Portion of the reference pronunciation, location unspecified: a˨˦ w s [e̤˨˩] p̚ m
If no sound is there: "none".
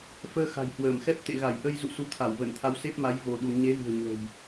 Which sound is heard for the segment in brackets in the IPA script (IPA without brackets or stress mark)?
e˦˥